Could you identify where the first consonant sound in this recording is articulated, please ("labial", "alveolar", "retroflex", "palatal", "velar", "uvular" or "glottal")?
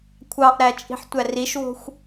velar